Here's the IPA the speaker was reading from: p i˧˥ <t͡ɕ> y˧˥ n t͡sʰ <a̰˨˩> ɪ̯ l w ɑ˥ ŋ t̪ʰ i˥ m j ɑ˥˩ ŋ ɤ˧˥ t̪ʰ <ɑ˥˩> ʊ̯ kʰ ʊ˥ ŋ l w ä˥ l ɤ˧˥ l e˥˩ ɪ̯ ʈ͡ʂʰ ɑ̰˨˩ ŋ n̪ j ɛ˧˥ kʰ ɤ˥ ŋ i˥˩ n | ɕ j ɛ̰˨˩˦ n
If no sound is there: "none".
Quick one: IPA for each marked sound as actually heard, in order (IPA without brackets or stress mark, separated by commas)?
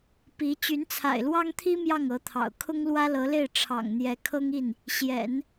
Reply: t͡ɕ, a̰˨˩, ɑ̰˨˩